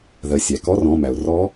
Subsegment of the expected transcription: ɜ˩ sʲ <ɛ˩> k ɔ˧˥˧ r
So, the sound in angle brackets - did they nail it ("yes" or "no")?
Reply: no